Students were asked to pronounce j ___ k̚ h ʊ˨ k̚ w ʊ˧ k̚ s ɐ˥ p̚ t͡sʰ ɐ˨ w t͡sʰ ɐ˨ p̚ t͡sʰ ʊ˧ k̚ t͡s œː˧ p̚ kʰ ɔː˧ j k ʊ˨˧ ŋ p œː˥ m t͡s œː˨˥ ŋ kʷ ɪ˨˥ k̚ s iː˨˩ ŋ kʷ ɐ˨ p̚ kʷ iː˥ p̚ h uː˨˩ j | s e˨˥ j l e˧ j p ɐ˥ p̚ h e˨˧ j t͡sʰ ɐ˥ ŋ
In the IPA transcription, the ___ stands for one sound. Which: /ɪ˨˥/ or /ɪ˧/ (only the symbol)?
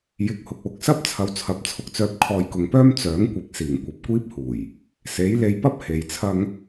ɪ˨˥